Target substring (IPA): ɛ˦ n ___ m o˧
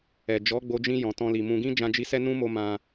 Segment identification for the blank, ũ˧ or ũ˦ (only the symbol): ũ˦